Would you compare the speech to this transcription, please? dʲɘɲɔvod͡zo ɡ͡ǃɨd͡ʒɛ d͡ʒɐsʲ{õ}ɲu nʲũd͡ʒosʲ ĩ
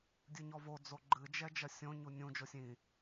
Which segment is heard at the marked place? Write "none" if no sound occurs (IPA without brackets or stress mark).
õ